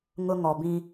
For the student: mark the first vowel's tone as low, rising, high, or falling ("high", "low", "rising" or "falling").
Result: high